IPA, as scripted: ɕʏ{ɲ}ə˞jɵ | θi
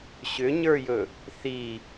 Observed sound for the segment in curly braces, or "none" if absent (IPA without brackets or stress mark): ɲ